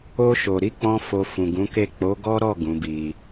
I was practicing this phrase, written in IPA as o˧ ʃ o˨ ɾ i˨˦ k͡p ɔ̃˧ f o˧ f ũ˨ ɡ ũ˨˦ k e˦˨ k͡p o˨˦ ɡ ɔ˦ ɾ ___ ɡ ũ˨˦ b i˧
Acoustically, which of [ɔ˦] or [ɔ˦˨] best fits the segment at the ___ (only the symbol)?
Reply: ɔ˦˨